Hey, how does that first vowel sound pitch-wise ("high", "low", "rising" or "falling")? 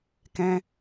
high